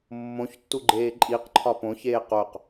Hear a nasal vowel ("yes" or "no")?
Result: yes